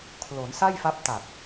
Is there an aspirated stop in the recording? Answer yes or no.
yes